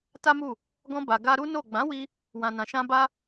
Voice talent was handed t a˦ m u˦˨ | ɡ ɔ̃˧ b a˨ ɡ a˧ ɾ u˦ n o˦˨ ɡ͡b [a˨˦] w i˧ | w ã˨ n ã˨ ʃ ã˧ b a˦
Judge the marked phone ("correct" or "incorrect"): incorrect